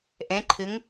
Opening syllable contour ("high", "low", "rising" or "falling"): rising